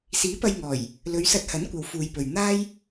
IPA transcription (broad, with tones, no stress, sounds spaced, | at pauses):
s iː˨˥ p ɐ˧ j ŋ ɔː˨˩ j | l ɵ˨˧ ɥ s ɐ˧ t̚ h ɐ˨˥ n kʷ ɐ˨ w f uː˨ j p ɵ˨ ɥ n̪ aː˥ j